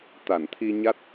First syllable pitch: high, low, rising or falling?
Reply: low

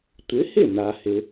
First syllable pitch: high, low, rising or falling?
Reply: rising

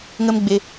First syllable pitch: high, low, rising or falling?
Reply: high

